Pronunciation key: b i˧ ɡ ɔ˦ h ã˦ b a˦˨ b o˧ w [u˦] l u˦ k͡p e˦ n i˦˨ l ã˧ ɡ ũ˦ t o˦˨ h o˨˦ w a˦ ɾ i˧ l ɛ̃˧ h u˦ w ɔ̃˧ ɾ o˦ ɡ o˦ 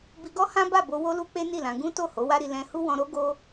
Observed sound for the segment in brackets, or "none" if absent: o˦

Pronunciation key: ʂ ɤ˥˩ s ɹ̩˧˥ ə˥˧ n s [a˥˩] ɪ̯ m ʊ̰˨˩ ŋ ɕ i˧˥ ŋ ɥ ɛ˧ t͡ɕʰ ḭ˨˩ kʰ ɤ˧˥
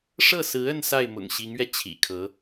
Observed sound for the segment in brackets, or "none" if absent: a˥˩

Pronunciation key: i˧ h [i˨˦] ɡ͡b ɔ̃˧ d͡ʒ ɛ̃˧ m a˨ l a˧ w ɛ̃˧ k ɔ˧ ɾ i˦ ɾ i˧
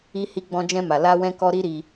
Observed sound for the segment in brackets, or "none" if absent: i˧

